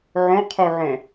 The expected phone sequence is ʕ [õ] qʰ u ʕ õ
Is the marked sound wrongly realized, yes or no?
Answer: no